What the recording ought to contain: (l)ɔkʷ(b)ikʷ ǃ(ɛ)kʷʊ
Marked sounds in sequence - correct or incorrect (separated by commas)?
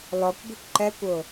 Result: correct, correct, correct